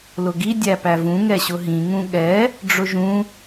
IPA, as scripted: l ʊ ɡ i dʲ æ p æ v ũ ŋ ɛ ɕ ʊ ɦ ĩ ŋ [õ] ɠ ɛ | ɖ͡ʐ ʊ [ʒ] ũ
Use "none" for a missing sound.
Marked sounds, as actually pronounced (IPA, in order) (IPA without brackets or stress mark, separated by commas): ũ, ʒ